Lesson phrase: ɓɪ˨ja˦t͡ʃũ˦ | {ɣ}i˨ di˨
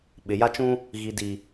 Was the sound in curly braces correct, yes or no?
yes